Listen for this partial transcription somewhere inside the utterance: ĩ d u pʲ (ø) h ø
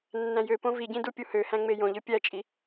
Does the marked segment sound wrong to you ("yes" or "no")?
yes